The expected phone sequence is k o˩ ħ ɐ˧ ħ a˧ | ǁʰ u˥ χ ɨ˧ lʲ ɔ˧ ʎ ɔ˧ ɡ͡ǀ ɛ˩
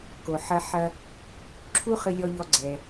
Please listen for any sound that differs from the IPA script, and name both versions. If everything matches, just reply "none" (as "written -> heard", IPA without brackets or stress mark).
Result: a˧ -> ɐ˧